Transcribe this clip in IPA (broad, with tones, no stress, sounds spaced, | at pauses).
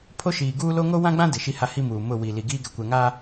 pʰ o˦ ʃ iː˨ ɡ uː˦ l o˦ ŋ o˦ w ã˦ ɡ͡b ã˦ d ɪ˨ ʃ i˦ h a˦ h i˦ m uː˨ m ʊ˦˨ w i˨ l i˨ ɡ iː˦ ɡ ɛ˨ kʷ ɛ˨ ŋ a˦